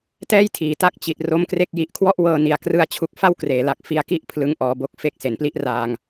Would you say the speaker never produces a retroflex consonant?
yes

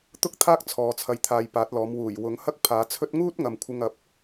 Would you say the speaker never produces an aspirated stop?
no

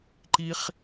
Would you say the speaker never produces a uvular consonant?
no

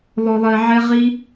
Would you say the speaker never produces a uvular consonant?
no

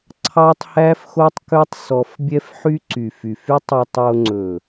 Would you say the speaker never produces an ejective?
yes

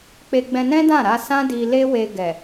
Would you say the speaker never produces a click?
yes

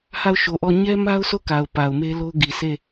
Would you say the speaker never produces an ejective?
yes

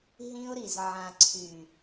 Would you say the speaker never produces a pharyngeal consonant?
no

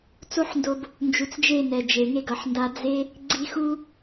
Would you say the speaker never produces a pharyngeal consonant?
no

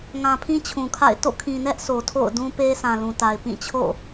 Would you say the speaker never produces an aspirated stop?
no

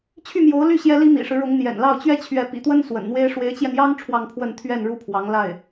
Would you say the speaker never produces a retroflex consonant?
no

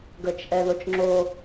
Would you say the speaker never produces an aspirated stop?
yes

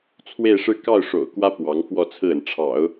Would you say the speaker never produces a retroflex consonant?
no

